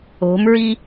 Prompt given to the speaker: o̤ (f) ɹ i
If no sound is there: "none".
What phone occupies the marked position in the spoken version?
m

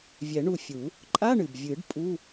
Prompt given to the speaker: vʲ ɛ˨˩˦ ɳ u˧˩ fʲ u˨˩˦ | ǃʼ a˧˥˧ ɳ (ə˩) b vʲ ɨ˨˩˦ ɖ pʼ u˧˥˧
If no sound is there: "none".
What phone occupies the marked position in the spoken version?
ɨ˩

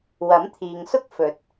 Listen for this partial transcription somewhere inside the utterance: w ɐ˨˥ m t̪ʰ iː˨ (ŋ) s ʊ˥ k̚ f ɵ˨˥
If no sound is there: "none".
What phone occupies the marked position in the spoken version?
ŋ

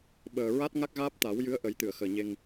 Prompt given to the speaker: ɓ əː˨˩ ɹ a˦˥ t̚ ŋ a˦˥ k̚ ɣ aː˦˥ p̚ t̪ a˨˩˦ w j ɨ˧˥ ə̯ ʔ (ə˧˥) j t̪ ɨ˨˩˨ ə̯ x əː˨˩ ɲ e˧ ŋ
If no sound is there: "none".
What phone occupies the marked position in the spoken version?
ə˨˩˦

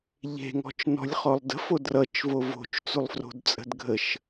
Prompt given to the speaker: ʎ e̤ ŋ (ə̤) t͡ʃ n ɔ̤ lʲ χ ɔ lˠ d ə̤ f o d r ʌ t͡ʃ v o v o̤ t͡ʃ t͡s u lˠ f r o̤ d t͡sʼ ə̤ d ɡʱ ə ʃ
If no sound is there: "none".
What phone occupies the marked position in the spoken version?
ɔ̤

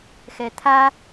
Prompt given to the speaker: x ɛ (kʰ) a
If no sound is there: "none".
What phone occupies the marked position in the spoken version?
t̪ʰ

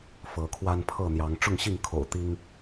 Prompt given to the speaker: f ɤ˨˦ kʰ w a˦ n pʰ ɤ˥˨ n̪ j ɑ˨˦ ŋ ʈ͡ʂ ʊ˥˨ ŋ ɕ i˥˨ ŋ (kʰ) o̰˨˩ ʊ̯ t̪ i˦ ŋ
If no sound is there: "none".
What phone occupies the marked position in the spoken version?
kʰ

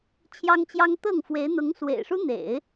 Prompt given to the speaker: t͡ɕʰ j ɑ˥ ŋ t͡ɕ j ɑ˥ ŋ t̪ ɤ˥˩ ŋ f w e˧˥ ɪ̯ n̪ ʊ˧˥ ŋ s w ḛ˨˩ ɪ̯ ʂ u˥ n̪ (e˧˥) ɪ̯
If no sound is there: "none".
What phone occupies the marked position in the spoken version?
ḛ˨˩˦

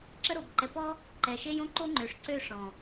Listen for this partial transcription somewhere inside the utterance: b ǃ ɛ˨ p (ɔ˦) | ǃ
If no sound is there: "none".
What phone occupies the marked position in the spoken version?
ɔ˦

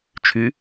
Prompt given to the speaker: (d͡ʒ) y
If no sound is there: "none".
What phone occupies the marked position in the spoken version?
t͡ʃʰ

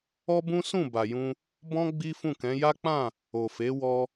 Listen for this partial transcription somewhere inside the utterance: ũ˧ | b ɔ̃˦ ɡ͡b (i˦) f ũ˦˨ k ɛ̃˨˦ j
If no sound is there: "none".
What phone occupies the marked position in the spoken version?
i˦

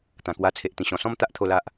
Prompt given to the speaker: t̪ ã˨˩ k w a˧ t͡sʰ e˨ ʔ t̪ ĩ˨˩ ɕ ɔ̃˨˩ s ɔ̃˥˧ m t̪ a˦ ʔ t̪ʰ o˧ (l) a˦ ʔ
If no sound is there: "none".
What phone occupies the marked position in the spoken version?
l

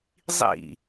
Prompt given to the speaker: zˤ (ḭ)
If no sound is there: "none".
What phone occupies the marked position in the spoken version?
ḭ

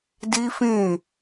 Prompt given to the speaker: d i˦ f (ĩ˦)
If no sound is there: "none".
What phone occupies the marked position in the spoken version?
ĩ˦˨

